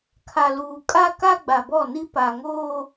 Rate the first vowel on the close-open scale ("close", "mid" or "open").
open